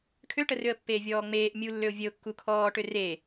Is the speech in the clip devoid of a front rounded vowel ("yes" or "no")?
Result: no